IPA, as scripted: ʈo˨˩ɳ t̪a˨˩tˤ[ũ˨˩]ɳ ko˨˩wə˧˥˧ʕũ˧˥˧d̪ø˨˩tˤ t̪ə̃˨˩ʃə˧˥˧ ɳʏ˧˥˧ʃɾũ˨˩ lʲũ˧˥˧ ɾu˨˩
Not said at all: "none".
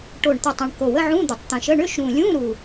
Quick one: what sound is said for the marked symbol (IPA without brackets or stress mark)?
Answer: ũ˨˩